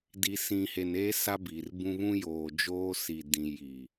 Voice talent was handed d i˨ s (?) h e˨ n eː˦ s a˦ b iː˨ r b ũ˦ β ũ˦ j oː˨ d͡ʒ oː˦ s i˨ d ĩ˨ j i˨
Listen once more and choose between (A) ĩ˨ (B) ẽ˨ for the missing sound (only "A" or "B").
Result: A